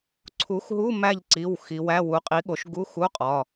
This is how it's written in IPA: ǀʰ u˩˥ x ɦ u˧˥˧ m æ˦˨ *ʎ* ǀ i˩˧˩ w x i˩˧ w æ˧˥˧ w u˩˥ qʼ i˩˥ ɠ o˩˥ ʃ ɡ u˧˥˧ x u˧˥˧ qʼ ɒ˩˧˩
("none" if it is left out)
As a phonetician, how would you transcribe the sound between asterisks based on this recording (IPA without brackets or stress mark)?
ʎ